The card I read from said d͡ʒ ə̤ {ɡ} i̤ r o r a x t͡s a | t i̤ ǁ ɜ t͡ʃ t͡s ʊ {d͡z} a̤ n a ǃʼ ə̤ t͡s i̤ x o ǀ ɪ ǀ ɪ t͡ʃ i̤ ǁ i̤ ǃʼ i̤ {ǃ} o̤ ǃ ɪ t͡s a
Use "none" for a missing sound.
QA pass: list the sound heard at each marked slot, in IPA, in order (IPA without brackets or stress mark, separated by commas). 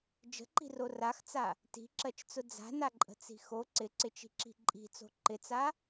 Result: ǃ, d͡z, t͡s